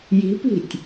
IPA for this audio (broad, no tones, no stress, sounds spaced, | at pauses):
j i̤ p i̤ tʲ